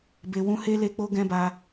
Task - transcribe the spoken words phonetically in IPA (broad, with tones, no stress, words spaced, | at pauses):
be˧wũ˦he˦ le˦k͡po˦ɡɛ̃˦ba˧